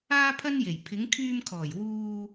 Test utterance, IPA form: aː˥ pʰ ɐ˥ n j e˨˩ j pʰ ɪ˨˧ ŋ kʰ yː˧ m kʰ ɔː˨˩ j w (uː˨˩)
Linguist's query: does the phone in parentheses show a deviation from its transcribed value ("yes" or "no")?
yes